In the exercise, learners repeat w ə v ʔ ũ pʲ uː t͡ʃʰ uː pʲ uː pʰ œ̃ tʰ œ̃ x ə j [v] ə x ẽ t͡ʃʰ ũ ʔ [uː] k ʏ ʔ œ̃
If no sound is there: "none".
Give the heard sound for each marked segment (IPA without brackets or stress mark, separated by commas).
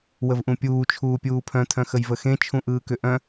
v, ɯː